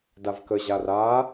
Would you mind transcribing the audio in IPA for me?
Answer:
d a v k ə ʑ a r a

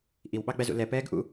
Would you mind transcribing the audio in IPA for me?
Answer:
ʔ i w ɓ ɑ ɡ͡b æ z ṵ l ɛ p ɛː ɡ ʔ ṵ

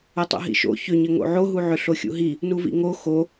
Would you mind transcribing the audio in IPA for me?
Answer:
o tˤ ṵ ɦ ḭ ʃ o̰ ç ʏ ɲ ɘ ŋ o̰ ʕ o ɦ u ʕ ʏ ɬ o xʲ ṵ ɦ i | n u v ḭ ŋ o x o

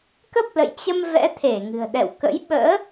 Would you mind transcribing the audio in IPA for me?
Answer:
k ə˦˥ p̚ l ə̰˧˨ j t͡ɕ ə˧ m v ɛ̰˧˥ t̪ʰ e˧˩ ŋ ɨ̤˨˩ ə̯ ɗ ɛ̰˧˨ w k ə̰˧˥ j ɓ ə̰ː˧˥

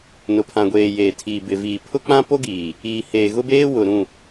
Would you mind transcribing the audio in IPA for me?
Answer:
n ʊ˨ pʰ ã˨ ɡʷ eː˨ j eː˨ tʰ iː˨ b ɪ˨ v iː˨ pʰ ʊ˦ k͡p ã˦ p o˦ ɡ iː˨ | iː˨ h eː˨ ɣ ʊ˦ b eː˦ w ʊ˨ ɾ ũ˦˨

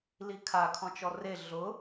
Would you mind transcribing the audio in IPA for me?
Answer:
l i kʰ a kʰ ɔ̃ t͡ʃ ɔ r e ɮ ʊ

